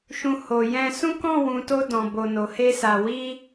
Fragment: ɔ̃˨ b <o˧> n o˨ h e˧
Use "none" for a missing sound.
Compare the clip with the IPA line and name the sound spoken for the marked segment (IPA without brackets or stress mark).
o˨